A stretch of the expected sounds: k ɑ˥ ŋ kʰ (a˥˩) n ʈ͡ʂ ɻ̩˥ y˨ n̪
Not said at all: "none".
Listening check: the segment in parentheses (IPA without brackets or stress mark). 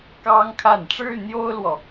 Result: a˥˩